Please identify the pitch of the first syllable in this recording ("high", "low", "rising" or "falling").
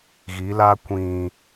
rising